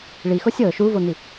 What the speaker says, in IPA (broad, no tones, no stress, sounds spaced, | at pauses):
ɭ i x o sʲ ɤ ʃ u v o n̪ i